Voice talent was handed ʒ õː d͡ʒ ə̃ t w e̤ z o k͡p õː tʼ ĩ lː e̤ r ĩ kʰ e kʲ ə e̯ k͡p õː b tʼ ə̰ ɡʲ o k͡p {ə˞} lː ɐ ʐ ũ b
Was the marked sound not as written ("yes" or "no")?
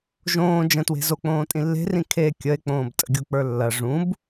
no